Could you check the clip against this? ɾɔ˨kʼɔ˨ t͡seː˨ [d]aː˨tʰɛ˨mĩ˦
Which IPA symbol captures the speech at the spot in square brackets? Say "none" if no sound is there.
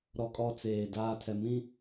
d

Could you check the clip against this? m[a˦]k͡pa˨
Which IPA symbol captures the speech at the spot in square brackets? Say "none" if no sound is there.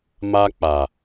a˦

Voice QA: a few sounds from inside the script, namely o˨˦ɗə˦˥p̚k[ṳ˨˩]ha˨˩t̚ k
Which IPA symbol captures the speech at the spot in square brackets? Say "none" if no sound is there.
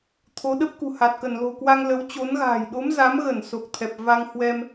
ṳ˨˩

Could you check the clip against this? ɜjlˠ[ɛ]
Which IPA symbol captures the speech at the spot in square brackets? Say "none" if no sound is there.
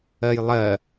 ɜ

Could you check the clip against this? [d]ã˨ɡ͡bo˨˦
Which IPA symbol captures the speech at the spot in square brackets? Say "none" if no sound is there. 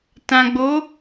t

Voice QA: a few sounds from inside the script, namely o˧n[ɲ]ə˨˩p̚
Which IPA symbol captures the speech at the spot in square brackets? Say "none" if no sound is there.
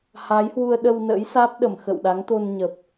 ɲ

